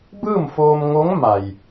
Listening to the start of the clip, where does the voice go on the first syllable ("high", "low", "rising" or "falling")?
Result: falling